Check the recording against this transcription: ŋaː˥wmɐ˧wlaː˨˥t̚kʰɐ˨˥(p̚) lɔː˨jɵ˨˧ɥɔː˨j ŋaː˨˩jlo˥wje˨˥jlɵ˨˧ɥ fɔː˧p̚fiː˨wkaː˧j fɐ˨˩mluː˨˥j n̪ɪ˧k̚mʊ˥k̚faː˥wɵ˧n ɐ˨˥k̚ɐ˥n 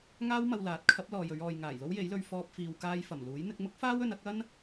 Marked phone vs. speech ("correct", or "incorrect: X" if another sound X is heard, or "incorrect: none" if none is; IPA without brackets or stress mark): correct